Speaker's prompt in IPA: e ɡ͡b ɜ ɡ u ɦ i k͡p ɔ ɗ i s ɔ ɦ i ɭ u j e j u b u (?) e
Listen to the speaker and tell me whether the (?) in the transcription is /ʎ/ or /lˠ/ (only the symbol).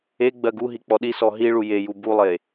lˠ